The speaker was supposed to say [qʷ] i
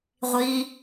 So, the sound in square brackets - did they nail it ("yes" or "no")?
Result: no